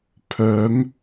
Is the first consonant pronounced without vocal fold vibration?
yes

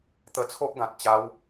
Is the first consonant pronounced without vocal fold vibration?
yes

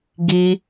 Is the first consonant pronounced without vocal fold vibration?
no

